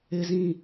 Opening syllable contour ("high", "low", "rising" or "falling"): low